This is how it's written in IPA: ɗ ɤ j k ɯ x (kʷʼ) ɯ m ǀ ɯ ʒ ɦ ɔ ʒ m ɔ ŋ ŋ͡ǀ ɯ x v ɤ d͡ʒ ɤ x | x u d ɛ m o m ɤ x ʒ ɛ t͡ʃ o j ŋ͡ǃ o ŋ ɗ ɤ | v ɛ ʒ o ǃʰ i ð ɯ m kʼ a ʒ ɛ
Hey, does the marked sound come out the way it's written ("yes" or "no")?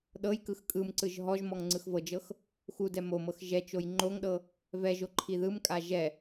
no